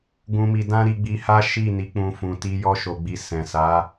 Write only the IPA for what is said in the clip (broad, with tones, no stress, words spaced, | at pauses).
ɡũ˧mi˧ dã˦ɾi˧ɡ͡bi˧ha˦ ʃi˦˨ni˨˦k͡pũ˧ fũ˨ti˧ jɔ˦ʃo˧ɡ͡bi˧ sɛ̃˨sa˨˦